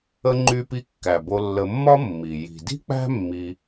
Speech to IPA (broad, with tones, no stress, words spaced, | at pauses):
ə˥ŋ͡ǃy˦pi˦ kːæ˩bo˨lːə˨mːɒ˦ mːi˩ ji̤˩di̤˥ k͡pæ̤˦mːi˨